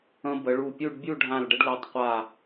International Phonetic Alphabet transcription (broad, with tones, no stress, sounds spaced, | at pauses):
ə̃˧ b ə˩˧ ɭ u˧˩ pʲ u˥˧ ɖ bʲ u˥˧ ɖʱ ã˧˩ l ɖ ə˧ ɖ l ɛ˩˧ tˤ qʷ a˧˩